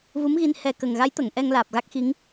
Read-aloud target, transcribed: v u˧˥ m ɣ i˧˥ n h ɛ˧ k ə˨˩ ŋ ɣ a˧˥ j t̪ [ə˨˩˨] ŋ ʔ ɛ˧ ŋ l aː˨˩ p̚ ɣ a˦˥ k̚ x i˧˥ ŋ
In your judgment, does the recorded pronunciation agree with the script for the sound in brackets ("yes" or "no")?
yes